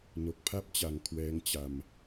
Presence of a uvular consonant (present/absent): absent